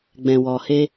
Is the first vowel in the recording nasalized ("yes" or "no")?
yes